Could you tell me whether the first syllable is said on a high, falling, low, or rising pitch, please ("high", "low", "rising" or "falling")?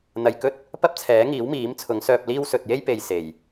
low